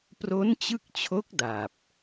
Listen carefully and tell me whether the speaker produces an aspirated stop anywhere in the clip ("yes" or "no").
yes